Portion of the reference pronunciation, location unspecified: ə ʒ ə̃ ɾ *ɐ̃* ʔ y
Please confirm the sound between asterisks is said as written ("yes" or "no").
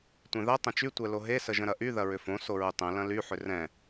no